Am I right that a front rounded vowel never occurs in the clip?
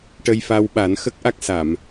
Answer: yes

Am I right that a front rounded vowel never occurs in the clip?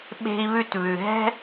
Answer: yes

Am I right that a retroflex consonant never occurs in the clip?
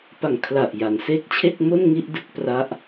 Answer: yes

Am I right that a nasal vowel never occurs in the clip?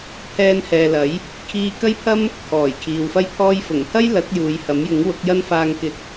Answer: yes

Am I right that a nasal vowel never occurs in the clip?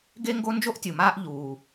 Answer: yes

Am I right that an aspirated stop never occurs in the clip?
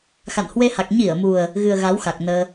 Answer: yes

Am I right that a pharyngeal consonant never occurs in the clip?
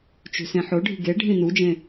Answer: no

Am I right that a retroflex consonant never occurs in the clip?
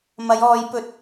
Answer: yes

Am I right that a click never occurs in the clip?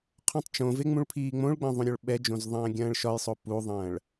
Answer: yes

